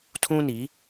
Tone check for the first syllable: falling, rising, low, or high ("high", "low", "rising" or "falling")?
high